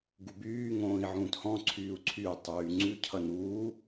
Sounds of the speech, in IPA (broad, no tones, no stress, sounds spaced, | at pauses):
ɡ u b yː ŋ õː i̯ ʕ ũː t h ɔ̃ ǀʰ yː u̯ ǀʰ y u̯ tˤ yː ŋ͡ǀ ʉ cʰ ʌ n uː